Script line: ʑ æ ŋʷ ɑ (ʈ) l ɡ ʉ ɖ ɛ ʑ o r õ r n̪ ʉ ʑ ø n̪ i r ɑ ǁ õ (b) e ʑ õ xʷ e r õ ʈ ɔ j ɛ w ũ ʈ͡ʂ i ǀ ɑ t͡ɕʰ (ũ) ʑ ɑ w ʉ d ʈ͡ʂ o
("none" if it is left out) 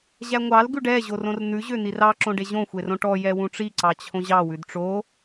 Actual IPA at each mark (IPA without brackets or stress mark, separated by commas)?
none, ɖ, õ